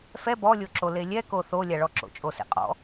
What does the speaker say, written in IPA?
fɛ bɔlʲoǁo lelʲɛko θolʲaɭɔǁo̰ t͡ʃʼosḛqʼɔ̰

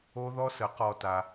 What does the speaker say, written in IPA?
o˦ðɔ˦sə˨˥ qɔ˦ta˦

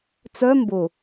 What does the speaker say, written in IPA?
t͡sœ mbʊ

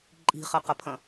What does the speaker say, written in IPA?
ǃʼi̤χɐqɐpʰɐ̃

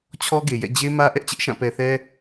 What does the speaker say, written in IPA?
t͡ɕʰɔ˦ɡe˨jɛ̰˦˨ d͡ʑe˦mä˦ ʔɛ˦ʔt͡ɕɪ˦ʔʃã˦˨ pɛ˨θɛ˦

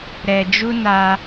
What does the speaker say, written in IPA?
ɾɛ˧d͡ʒu˦ na˦

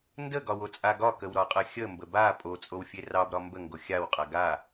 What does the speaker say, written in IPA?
ndəɡɒ wot͡sʼaɡɒkəw ɾɒqʼɐxʲəmbə ba pʼot͡sʼow fʲerɑbɾɒ mbəŋɡo xʲawqʼa ɡa

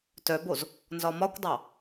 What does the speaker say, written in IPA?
tœboz | nzɒmɒkʷdˤɑ

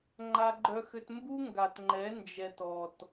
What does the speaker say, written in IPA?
ŋ͡ǃa˦ɡ͡ǃœ˦xʏ˦t mbu˦ŋɡa˨tŋ͡ǃɛ˨˦ nd͡ʒɛ˨t ɔ˨t

